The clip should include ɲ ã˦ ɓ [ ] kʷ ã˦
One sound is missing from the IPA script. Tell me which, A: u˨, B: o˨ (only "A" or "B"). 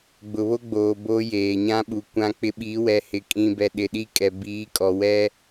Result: A